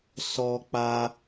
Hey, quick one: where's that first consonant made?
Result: tongue tip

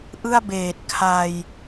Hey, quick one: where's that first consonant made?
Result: throat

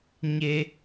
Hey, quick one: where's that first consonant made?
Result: palate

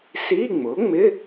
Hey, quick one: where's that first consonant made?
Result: tongue tip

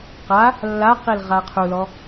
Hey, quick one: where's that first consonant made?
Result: uvula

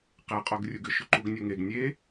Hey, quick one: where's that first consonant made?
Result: uvula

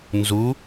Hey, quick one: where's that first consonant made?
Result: tongue tip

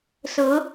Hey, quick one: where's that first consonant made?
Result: tongue tip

